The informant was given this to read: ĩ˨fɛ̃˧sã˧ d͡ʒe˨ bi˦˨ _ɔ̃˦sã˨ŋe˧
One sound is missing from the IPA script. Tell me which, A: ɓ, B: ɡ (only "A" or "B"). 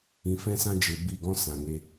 B